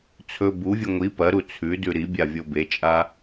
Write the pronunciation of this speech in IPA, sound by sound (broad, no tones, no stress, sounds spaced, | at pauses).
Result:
t͡sʰ ɵ b u vʲ ɨ ŋʷ i p ɐ ɾ u t͡sʰ ʉ d ʉ ɾ i bʲ a vʲ o b e t͡ʃʼ a